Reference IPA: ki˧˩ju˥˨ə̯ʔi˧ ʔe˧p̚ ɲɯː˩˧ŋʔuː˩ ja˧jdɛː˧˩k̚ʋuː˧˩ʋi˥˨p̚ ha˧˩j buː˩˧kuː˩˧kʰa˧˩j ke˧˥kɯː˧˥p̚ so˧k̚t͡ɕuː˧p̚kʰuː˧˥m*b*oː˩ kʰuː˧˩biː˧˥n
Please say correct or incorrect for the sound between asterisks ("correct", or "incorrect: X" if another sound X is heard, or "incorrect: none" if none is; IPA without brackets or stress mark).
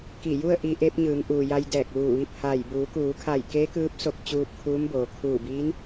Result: correct